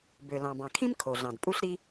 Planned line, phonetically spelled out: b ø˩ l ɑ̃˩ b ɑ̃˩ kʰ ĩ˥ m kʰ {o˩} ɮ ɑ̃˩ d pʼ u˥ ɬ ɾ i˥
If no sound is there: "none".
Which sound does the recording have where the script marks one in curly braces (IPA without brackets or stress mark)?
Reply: o˩